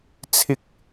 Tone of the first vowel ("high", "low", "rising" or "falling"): high